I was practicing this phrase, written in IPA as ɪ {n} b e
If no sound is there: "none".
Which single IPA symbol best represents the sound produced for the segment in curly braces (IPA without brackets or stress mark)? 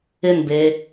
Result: n